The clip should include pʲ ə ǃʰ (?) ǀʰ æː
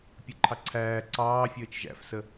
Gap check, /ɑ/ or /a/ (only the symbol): ɑ